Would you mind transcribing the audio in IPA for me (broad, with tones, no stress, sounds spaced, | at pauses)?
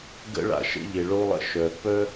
ɡ ə̰˧ ɭ a̰˩ ʃ ə̰˧ ʎ e˩ ɭ o˧ lˠ ə̰˩ ʃ œ˩ p œ˥